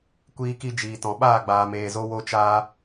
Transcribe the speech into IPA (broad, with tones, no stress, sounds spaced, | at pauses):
kʷ iː˧ k i˧ d͡ʒ iː˨ t ɔ̃˨ ɓ aː˦˨ ɡ͡b aː˨ m eː˨ z o˧ w o˧ t͡ʃ aː˧